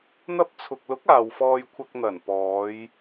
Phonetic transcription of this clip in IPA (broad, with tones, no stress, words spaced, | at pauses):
n̪ɐ˧p̚t͡sʰʊ˨k̚lʊ˨˥k̚ aː˨wfɔː˧jkʷʰɐ˧k̚ n̪ɐ˨˩npɔː˨˧j